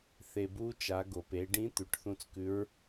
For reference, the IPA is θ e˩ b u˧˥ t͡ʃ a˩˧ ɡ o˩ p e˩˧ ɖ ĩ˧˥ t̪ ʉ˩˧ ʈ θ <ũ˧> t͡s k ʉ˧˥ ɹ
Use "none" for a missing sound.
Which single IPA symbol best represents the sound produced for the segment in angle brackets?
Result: ũ˧˥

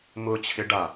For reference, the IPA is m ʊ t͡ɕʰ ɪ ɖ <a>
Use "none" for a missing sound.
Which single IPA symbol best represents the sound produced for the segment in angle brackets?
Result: a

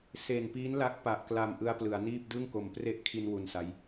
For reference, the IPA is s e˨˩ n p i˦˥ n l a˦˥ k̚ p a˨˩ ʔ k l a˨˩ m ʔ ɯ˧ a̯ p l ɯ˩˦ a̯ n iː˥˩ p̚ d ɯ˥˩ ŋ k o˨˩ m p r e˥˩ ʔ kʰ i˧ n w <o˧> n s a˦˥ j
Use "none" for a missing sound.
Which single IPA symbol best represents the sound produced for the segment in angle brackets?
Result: u˧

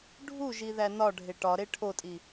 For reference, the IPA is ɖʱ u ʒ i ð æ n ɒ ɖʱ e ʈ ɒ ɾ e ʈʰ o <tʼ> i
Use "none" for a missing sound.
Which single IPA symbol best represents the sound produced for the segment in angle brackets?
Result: tʼ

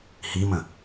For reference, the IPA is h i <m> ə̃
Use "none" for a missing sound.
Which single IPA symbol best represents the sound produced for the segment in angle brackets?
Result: m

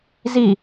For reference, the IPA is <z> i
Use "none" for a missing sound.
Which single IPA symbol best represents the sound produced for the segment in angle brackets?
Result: z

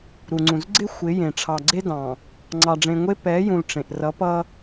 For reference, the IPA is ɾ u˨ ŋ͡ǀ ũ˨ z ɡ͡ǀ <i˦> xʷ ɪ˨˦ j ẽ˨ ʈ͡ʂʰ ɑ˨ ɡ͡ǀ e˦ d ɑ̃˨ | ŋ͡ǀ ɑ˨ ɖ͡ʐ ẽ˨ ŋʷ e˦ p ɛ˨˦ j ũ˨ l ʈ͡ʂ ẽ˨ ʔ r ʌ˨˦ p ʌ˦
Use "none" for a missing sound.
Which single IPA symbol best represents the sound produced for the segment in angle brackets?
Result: ɪ˦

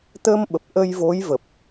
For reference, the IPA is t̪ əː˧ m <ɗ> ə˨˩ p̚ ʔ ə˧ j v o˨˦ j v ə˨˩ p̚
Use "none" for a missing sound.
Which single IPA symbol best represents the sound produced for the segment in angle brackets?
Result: ɓ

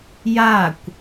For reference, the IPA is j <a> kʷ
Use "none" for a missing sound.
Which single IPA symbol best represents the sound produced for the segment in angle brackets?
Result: a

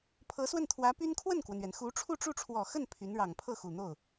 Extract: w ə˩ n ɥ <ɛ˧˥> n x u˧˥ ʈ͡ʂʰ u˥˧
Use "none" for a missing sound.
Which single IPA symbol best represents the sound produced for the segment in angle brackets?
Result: ɛ˩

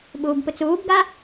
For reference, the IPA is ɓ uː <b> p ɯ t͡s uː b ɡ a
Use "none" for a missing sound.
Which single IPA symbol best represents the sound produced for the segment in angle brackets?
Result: b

